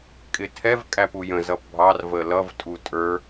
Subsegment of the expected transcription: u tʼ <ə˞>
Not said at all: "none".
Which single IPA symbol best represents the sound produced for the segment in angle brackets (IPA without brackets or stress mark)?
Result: ə˞